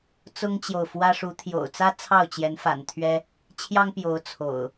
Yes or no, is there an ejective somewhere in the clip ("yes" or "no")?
no